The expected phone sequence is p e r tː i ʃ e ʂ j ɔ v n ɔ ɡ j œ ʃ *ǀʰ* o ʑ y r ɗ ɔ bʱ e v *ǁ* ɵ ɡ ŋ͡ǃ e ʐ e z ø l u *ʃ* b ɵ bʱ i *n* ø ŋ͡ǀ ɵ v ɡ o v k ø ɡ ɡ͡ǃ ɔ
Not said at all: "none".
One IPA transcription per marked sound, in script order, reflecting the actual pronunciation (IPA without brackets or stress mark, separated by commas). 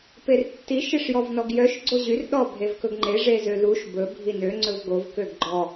ɡ͡ǀ, k, ʃ, n